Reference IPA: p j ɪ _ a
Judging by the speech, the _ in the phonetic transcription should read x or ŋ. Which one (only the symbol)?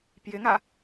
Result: ŋ